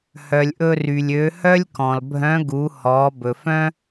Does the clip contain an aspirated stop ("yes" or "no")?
no